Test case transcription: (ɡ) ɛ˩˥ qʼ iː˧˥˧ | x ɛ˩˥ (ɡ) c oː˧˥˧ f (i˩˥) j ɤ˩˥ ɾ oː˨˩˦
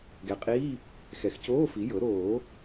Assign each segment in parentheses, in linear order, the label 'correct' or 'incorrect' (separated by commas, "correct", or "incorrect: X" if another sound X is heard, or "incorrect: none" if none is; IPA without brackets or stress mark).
correct, incorrect: x, correct